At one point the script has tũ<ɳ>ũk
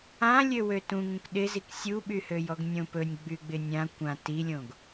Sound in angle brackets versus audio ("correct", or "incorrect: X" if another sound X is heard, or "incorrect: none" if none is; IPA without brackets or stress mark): incorrect: ŋ